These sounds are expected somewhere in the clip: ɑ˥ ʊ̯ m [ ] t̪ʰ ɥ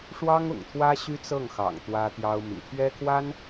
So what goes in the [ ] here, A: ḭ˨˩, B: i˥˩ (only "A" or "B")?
A